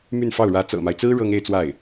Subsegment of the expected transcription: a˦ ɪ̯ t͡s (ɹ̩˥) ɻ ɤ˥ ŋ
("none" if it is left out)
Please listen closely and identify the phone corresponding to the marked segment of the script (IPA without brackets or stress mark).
ɹ̩˥